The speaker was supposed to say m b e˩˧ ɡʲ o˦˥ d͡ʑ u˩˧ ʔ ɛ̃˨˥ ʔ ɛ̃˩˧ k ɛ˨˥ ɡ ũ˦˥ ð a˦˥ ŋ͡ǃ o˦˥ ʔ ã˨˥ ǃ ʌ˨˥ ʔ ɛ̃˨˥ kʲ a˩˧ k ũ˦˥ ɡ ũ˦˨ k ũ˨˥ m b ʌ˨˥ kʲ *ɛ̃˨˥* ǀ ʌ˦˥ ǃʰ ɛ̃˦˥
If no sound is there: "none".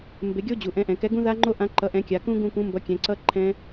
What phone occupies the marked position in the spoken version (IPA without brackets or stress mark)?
ɛ̃˩˧